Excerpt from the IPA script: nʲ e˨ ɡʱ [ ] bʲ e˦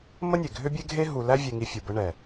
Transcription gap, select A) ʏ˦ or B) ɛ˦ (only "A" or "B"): A